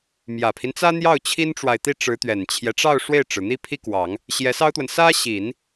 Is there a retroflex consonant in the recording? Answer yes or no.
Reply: yes